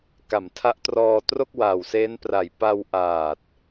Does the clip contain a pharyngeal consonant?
no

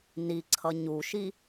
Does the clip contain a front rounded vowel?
no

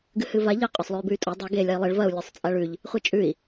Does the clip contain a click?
no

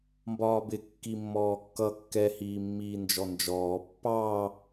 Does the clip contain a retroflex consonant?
no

